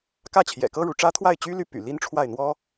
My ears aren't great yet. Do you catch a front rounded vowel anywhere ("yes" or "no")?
yes